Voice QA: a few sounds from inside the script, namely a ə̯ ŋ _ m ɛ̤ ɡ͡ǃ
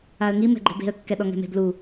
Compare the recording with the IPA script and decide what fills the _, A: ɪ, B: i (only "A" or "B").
B